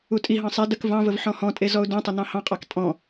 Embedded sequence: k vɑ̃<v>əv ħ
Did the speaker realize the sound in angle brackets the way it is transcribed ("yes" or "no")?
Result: yes